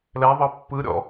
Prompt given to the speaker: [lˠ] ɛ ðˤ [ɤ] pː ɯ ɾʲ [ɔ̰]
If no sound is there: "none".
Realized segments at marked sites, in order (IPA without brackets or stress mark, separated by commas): l, ɤ, ɔ̰